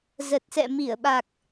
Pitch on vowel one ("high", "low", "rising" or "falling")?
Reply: low